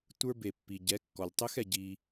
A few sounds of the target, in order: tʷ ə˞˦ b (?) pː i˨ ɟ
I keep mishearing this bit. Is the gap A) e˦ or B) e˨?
B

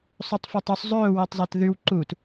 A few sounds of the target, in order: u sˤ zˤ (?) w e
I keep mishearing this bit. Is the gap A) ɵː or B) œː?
A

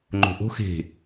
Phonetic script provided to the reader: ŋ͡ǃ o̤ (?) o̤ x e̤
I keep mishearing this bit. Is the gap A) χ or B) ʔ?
B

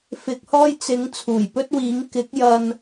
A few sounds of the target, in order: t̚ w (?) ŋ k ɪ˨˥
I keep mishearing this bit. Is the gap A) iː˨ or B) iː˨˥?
B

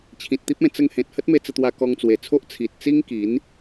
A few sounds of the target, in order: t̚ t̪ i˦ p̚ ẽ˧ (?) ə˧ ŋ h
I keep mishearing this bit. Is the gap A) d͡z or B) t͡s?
B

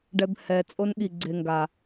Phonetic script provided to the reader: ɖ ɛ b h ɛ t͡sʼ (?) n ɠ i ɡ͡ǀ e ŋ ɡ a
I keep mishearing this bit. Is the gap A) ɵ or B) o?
B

